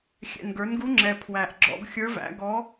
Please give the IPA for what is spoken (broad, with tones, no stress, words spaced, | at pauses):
xʲɛ̰˨˩nɡə˞˩˥nɡu˧˥ŋ͡ǁɛ˨˩ pʰwæ˨˩ʔɡ͡ǁɔ̰˨˩˦ɡxʲə˞˧˥væ̰˩˥ ɡɔ˧˥